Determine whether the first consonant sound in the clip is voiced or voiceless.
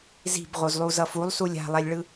voiced